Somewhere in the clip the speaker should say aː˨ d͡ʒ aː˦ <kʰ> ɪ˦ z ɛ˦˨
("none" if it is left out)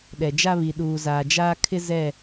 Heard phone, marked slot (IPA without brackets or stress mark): kʰ